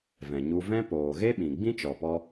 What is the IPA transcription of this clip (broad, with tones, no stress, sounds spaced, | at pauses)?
v ɛ̃˨ ɲ u˧ v ɛ̃˦ p oː˨ ɣ e˦ ɓ ĩ˨ ɡ͡b ĩ˦ t͡ʃ ɔ˨ p ɔ˧